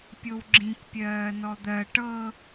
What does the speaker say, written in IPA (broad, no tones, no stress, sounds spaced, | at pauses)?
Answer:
pʲ o w ɡ͡ǁ ĩ k pʲ ɜː n ɔ d̪ ɜ ʈ ɤ